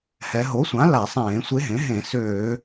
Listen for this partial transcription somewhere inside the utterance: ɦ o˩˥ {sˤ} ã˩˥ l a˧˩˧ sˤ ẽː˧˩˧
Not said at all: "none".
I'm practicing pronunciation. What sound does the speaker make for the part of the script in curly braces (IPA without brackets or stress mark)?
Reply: sʷ